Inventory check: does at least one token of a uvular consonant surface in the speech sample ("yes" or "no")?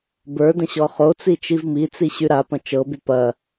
yes